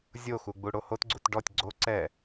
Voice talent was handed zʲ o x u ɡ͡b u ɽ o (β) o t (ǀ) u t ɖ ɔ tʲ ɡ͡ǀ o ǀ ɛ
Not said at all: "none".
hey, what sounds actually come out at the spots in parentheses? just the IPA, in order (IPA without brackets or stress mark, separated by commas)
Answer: h, ɡ͡ǀ